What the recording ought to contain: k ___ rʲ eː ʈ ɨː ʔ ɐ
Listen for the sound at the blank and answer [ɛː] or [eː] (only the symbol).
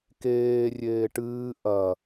eː